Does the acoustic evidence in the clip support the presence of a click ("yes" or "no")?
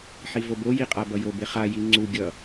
yes